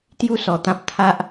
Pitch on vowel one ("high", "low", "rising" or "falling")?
falling